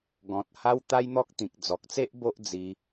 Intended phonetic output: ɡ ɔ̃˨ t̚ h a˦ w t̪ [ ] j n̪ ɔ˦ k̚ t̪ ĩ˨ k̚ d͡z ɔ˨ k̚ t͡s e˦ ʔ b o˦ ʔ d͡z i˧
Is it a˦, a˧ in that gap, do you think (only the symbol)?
a˦